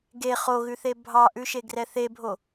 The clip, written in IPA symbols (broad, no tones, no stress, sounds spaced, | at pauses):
ɡ e χ o ɣ ʉ θ e bʱ ɑ ʔ ʉ ʃ e ɡ r ɛ θ e bʱ o